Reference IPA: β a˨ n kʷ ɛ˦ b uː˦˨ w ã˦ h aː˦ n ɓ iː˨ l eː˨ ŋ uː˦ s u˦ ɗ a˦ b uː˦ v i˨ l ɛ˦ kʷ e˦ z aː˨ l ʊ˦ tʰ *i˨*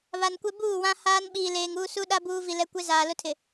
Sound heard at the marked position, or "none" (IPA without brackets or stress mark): ɪ˨